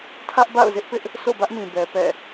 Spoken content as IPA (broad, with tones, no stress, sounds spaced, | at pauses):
tʰ ä˦ ʔ b a̰˦˨ ʊ̯ z ɪ˦ ʔ p ɪ˦ ʔ | sʰ o̰˦˨ b ä˦ ʔ m ĩ˨ b ɛ˨ p ɛ̰˦˨